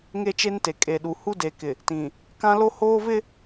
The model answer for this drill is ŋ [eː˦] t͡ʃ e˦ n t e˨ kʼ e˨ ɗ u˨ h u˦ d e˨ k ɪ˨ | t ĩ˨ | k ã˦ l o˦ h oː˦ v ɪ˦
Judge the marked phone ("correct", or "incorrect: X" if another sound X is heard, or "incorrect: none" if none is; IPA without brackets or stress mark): incorrect: e˦